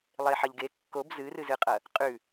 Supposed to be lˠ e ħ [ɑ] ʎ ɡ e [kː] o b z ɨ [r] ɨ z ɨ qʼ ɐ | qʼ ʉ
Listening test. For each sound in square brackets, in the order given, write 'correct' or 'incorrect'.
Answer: incorrect: ɐ, correct, correct

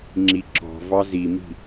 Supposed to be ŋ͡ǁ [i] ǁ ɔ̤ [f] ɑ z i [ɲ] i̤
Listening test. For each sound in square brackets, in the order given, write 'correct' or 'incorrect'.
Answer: correct, incorrect: v, incorrect: m

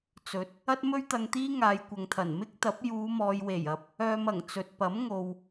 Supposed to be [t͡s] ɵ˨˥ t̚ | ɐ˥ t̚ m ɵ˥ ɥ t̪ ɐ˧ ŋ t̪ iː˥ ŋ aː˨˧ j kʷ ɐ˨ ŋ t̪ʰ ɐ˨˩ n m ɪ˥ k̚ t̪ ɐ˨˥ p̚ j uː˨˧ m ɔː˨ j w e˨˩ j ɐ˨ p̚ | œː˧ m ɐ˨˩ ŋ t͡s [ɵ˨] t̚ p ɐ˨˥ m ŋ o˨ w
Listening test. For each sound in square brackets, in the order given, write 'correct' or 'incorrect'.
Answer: correct, correct

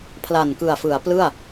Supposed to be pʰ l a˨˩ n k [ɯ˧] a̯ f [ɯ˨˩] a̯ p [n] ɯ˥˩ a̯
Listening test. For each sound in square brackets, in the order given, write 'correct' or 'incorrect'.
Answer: incorrect: ɯ˨˩, incorrect: ɯ˩˦, incorrect: l

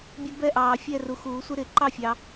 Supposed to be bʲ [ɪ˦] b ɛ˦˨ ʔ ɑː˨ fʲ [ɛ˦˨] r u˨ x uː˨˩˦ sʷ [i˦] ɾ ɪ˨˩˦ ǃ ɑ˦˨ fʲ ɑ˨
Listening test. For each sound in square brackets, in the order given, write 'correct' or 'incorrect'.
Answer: incorrect: ɛ˦, correct, incorrect: ɪ˦

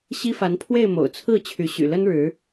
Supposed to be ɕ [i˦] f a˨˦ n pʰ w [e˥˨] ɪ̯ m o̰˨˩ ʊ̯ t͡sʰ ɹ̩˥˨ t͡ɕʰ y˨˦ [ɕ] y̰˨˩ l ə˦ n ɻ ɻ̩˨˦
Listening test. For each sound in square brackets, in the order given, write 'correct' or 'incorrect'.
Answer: correct, correct, correct

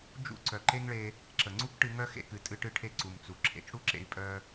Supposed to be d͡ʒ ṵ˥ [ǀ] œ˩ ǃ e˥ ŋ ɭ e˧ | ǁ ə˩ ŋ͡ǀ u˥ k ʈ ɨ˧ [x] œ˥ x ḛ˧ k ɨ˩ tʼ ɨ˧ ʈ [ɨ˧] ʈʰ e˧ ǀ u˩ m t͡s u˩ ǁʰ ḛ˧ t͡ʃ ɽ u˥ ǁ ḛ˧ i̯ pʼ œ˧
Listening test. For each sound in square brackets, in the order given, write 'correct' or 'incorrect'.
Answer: correct, incorrect: ŋ, correct

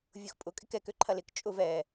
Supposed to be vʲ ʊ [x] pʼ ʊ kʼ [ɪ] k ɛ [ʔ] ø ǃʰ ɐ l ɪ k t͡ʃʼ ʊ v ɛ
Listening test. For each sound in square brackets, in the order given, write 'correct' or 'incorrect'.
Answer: correct, correct, incorrect: k

